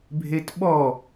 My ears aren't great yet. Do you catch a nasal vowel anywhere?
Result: no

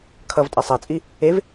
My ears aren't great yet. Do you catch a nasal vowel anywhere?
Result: no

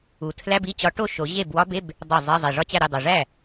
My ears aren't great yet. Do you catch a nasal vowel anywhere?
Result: no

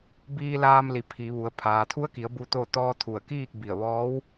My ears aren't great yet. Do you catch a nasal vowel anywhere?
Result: no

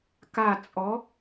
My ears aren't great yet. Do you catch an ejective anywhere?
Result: yes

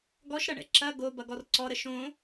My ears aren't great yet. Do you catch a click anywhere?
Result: yes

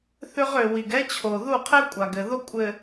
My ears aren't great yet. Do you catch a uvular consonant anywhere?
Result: yes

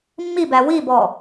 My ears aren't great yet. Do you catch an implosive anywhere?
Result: no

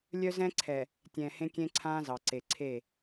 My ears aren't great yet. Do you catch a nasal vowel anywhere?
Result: yes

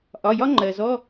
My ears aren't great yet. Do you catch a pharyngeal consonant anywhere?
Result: no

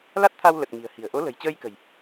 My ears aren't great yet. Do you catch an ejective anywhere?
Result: no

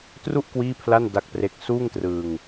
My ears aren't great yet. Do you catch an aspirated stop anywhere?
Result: yes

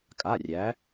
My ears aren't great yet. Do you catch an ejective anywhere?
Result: yes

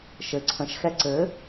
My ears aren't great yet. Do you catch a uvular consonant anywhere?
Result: no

